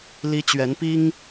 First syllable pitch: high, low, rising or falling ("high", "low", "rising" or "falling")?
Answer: high